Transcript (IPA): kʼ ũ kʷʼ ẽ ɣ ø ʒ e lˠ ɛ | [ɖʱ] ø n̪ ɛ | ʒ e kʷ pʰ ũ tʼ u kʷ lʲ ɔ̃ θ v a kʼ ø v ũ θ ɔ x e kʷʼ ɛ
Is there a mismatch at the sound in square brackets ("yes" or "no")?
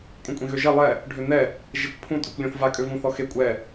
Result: no